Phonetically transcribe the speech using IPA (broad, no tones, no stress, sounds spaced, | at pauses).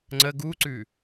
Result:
ŋ͡ǀ ə ɡ u ǀ ʉ